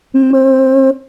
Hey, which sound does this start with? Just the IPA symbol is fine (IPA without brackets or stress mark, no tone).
ŋ͡m